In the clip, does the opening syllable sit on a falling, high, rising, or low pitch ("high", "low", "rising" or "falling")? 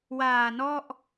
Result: low